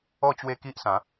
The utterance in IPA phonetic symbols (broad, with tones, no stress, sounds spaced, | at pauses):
ɔ˥˧ t͡ɕ w e˦ k i˦ ʔ s ã˨˦